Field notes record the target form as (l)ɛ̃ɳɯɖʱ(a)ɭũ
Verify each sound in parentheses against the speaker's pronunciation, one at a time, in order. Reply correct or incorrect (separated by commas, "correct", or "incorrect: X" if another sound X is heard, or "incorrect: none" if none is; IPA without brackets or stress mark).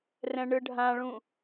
incorrect: r, incorrect: ã